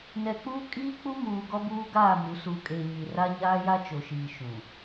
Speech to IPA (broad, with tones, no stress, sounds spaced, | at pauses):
n ɛ˨ k͡p uː˦ kʼ iː˦ k͡p u˦ m uː˨ ɡ ɔ˦ b uː˦ ɡ aː˦˨ m u˨˦ s uː˨ kʼ eː˨ ɲ i˨ r a˦ ɲ aː˦ j a˦ t͡ʃ o˨ ʃ iː˨ ʃ ũ˨